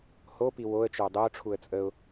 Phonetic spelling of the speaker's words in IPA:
h o p i w o ə̯ t͡ʃ ɵ ʊ̯ dˤ e ʊ̯ ʈ͡ʂʰ u ə̯ t͡sʼ ə ʊ̯

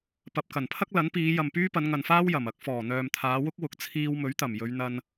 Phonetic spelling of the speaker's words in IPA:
p ɐ˨ p̚ k ɐ˨˩ n pʰ ɐ˥ k̚ l ɐ˨˥ n p iː˨˧ j ɐ˨ m p yː˥ p ɐ˨˧ n ŋ ɐ˨ n f aː˥ w j ɐ˨˩ m ɐ˨˥ k̚ f ɔː˨˩ n̪ œː˨ m t̪ʰ aː˨˧ w ʊ˥ k̚ w ʊ˨˥ k̚ t͡sʰ iː˧ w m ɵ˨˥ ɥ t̪ ɐ˨˩ m j ɵ˨˧ ɥ n̪ ɐ˧ n

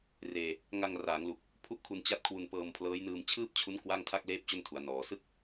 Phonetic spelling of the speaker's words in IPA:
r eː˧ | ŋ a˧ ŋ r aː˩˦ ŋ l u˨˩ k̚ | pʰ u˥˩ ʔ kʰ u˧ n t͡ɕ a˦˥ t̚ kʰ w u˧ n p ɤː˧ m pʰ l ɤː˦˥ j n ɯː˧ m t͡ɕʰ ɯː˥˩ p̚ t͡ɕʰ u˦˥ n k w a˥˩ ŋ tʰ a˥˩ k̚ l eː˥˩ p̚ t͡ɕ o˥˩ n tʰ u˩˦ a̯ n ɔː˩˦ s ɯ˥˩ k̚

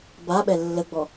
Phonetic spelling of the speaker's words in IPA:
b a ɓ ɛ lː ə ɡ͡b ɔ

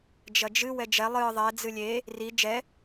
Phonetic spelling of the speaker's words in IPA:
d͡ʒ ɐ d͡ʒ ɨ w ɛ d͡ʒ ɛ lˠ ɨ ðˤ ɛ d͡z ɨ lʲ e | r i d͡ʒ ɛ

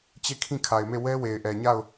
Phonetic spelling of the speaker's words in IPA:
t͡ɕ e˦˨ kʰ ĩ˦˨ kʰ a˨ ɪ̯ m e˦˨ w ɛ˦ w e˨ ɪ̯ ʔ ɛ˨ ɲ a˦˨ ʊ̯

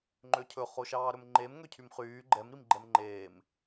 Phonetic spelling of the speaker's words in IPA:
ŋ͡ǃ ø cʰ ɵ χ o ʃ ɑː ɾ ɵ m ŋ͡ǃ e m ŋ ø cʰ y m χ yː ɡ͡ǃ ɛ m ɾ i m ɡ͡ǃ ɛ m ŋ͡ǃ eː m

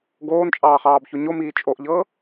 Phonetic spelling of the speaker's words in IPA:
ɡ oː n t͡ʃʼ ɑː χ ɑː b ç o ɲ o m iː t͡ʃʼ o ʔ ʎ ɤː

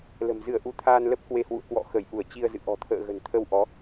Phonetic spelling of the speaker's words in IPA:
l ə̤˨˩ m z ɨ˧˩ ə̯ ʔ u˨˦ t̪ʰ aː˧ n l ə˦˥ p̚ k w e˧ h w ṵ˧˨ ə̯ k w ɔ̰˧˨ x ə˧˩ j ʔ u˧˩ ə̯ t͡ɕ i˧ ə̯ z ɨ̰˧˨ ʔ ɔ̤˨˩ t̪ʰ ə̰ː˧˨ ɣ ə̤˨˩ n t̪ʰ ə˧ w ʔ ɔ˨˦

